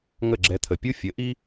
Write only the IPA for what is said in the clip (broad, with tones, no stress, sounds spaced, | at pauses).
ŋ ə˥˩ ɡ͡ǁ ɛ˧ t̪ʰ ə˩ pʲ u˥ fʲ ə˩˥ ʔ i˥